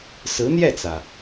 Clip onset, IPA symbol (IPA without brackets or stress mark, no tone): s